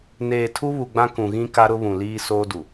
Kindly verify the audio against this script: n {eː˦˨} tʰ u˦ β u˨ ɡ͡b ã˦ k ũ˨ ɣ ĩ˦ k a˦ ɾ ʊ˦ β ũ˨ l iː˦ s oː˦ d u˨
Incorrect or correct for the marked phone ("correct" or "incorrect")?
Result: incorrect